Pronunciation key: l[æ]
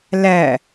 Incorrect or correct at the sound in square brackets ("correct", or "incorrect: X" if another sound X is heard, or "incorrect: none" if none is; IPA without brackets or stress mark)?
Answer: correct